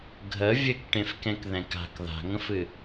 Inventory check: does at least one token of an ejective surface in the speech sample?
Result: no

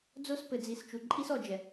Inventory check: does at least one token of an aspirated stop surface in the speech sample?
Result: no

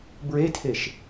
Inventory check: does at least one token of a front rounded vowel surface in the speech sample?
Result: no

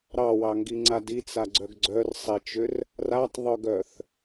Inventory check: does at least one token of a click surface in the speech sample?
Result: yes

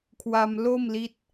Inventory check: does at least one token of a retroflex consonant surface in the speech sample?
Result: no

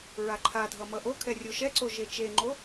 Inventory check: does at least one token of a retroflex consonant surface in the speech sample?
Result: no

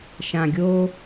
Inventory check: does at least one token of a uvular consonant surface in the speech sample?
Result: no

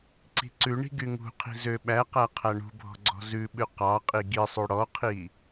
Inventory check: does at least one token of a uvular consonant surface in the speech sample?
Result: yes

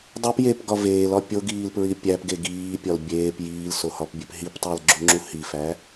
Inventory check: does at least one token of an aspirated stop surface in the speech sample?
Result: no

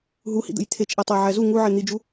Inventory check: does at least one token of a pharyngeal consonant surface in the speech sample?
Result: yes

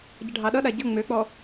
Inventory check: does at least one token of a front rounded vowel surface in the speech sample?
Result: yes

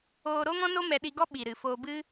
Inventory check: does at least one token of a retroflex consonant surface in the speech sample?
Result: no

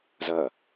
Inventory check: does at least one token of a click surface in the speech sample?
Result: no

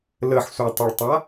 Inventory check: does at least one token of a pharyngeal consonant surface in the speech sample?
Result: yes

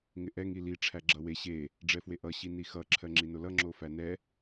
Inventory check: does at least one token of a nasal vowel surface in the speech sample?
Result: no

